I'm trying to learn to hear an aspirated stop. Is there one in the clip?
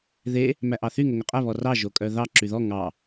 no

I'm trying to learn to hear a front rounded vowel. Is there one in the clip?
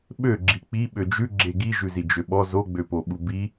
yes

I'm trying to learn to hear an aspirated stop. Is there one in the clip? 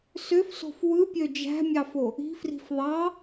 no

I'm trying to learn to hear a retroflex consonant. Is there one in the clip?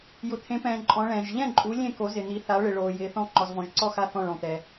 yes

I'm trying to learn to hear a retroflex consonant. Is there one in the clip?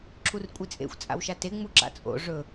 yes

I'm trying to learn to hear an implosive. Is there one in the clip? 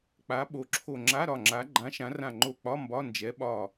yes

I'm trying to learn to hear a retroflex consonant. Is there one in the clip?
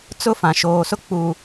no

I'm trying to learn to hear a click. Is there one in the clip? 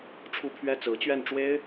no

